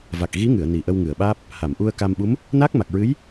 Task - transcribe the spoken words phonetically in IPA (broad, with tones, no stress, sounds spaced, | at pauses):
v a˨˩ k̚ ɣ i˧˥ ŋ ɨ˨˩˨ ə̯ n i˨˩ ʔ ə˧ w ŋ ɨ˨˩˨ ə̯ ɓ aː˦˥ p̚ | h a˨˩˨ m ʔ u˧ ə̯ k a˧ m ɓ u˧˥ m | n a˦˥ k̚ m a˨˩ k̚ ɹ ɨ˧˥ j